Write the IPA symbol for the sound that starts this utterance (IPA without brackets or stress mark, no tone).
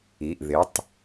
i